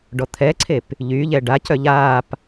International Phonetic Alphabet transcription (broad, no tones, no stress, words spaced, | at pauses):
ɖɔt̪ʰɛǀʰep | ʎyʎɛ ɖacœ ʎaːp